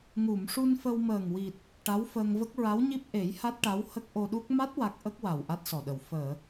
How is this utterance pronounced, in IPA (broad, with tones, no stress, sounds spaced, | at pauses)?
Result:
ŋ u˨˩˨ m ʂ u˧ n f ə˧ w m əː˨˩ ŋ w i˨˩ t̚ | ʈ a˧˥ w f əː˧ ŋ v ə˦˥ k̚ ɹ a˧˥ w ɲ i˦˥ p̚ ʔ e˨˩˦ j h a˦˥ t̚ ʈ a˧˥ w h ə˦˥ k̚ ʔ o˧ ɗ u˦˥ k̚ m a˦˥ t̚ w a˦˥ k̚ ʔ ə˦˥ k̚ w a˨˩ w ʔ a˦˥ t̚ s ɔ˨˩ ɗ ə˨˩ w f əː˨˩˨